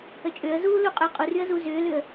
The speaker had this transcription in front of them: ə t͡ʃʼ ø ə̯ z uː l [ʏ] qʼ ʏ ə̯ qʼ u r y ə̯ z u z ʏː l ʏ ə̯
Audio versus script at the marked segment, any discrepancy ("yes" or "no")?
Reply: yes